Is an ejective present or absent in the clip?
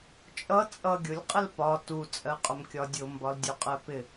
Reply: present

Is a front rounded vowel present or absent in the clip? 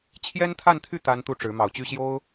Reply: present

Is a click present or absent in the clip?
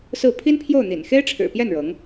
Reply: absent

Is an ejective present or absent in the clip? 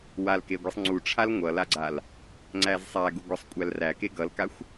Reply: present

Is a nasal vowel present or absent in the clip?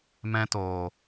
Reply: present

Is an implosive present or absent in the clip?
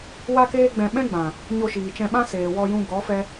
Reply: present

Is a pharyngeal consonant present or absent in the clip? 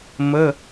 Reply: absent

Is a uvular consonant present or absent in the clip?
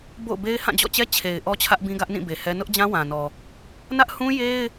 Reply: absent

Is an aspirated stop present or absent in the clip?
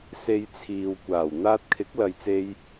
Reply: present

